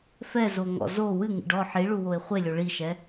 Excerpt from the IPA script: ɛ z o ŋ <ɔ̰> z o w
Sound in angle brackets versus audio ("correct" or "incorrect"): correct